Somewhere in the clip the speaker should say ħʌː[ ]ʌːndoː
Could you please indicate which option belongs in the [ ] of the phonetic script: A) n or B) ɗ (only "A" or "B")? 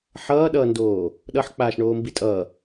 B